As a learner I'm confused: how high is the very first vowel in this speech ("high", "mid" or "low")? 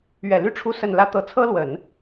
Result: mid